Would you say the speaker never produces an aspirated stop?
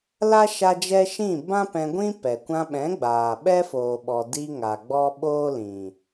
yes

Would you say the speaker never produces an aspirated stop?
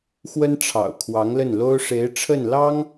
no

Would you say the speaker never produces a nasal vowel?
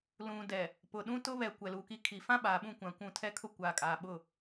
no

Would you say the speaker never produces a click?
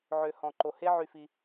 no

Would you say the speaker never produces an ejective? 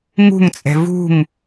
no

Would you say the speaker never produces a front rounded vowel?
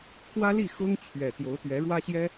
yes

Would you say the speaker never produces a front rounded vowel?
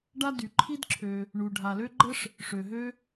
no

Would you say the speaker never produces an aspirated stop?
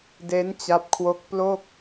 no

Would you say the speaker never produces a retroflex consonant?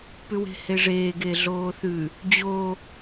no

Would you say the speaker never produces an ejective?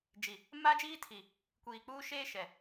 yes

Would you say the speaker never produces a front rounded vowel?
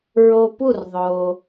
yes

